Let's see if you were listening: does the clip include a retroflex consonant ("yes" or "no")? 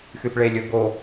yes